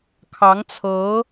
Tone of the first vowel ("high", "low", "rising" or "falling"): rising